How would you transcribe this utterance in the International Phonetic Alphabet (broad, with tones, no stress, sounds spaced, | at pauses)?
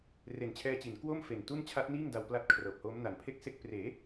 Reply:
r e˨˩ n t͡ɕʰ ɛː˧ t͡ɕ i˩˦ n k w o˥˩ m f e˨˩ n t u˥˩ n t͡ɕʰ a˦˥ t̚ n iː˥˩ ŋ d a˧ w p l a˦˥ t̚ kʰ r ɤː˨˩ p̚ h oː˦˥ m n a˩˦ n pʰ e˥˩ k̚ s e˥˩ k̚ p r eː˩˦